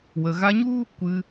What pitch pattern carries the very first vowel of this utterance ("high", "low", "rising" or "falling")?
low